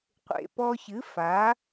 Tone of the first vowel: low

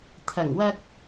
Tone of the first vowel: low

